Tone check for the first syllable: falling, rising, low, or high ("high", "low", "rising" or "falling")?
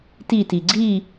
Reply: falling